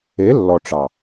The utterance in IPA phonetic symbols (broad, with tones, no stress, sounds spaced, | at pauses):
e˨˦ lː ɔ˨ ʈ͡ʂ ɑ˨